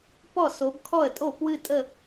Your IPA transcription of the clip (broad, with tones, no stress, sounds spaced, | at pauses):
p ɔ˥˩ s o˨˦ b kʰ ɔ˥˩ ə̯ tʼ o˥˩ p w ɨ˥˧ tʼ ə˥˧